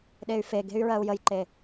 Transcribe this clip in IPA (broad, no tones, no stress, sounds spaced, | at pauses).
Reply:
ɗ e y̯ f e ɡ e̤ y̯ ɹ ɜ u̯ j ə j ǃ e